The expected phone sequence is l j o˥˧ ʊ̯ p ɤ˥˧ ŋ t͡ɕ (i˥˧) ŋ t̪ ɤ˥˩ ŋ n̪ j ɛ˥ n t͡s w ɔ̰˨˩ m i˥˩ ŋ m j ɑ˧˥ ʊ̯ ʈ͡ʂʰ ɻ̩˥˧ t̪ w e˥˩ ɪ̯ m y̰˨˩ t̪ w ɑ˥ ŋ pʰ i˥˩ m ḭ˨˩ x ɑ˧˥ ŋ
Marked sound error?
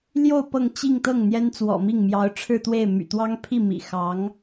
no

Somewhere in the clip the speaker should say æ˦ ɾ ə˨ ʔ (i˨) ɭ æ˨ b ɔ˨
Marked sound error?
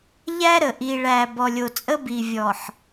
no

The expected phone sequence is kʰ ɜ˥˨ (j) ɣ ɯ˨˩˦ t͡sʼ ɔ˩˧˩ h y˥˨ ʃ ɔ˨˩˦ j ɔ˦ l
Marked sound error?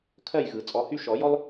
no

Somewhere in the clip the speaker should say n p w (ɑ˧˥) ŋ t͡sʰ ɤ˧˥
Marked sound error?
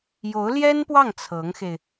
yes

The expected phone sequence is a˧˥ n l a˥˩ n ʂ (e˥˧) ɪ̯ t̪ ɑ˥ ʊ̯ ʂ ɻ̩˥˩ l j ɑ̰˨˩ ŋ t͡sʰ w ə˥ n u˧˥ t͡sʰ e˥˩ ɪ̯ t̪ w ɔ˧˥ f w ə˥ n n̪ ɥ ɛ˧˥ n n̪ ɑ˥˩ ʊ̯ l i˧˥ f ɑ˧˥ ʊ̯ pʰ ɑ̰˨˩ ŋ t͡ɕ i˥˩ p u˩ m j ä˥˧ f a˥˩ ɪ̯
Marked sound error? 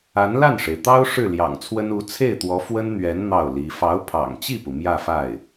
yes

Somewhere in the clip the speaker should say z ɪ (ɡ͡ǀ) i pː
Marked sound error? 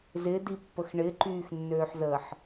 yes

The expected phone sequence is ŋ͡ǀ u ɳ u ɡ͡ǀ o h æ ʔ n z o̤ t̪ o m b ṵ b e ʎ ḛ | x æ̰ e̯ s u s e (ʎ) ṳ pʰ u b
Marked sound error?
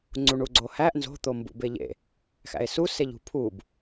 no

